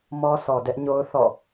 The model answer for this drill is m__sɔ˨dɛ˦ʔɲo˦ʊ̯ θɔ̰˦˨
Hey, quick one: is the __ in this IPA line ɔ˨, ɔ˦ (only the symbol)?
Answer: ɔ˦